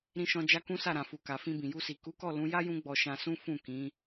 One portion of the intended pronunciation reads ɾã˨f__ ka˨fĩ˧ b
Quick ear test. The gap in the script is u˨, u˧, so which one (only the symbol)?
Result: u˨